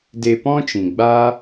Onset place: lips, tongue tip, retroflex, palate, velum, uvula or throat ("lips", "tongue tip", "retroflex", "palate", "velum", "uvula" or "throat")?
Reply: tongue tip